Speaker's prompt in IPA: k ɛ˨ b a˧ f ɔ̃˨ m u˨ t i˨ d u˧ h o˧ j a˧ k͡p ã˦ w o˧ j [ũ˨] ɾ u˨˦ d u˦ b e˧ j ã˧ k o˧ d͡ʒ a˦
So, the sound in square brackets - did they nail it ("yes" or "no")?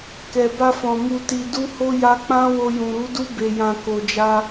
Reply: yes